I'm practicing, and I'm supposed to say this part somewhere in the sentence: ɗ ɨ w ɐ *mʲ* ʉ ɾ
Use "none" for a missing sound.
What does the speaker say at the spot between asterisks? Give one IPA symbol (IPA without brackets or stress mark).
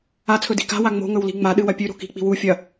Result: pʲ